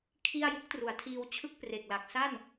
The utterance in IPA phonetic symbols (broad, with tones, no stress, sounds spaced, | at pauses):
kʰ i˥˩ a̯ j u˦˥ k̚ t r u˩˦ a̯ tʰ iː˧ w t͡ɕʰ ɯ˥˩ k̚ p r e˨˩ k̚ l a˨˩ k̚ s a˥˩ n